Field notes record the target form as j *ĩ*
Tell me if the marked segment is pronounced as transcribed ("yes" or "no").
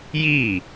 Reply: no